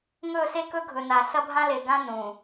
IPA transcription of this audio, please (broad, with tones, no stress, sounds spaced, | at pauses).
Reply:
ŋ ɵ˦˨ s e˦ k ɵ˦ ɡʱ ɵ˨ n a˨ s ɐ˦ bʱ ã˦ l e˨ ɡ ã˦ n ũ˨